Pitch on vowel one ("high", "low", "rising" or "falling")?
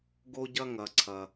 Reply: high